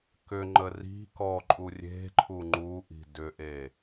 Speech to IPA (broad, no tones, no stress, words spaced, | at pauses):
kʏŋ͡ǃə ri̤ kɔǃʼu rʲe̤ǃʰu ŋ͡ǃuʔi̤ dʏʔe